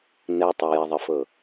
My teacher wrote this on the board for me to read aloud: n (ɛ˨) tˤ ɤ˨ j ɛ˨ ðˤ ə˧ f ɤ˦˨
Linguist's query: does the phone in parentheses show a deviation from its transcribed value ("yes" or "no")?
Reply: no